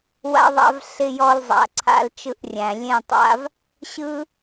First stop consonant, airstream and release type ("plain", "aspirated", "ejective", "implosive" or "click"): click